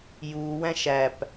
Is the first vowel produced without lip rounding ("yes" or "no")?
no